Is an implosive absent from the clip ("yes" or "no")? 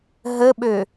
no